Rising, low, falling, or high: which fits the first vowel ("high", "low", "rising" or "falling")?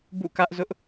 falling